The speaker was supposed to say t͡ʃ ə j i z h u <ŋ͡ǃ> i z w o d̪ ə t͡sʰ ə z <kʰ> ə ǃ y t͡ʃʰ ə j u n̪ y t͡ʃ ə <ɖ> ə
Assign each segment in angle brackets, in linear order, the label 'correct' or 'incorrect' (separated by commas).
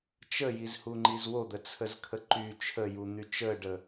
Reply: correct, correct, correct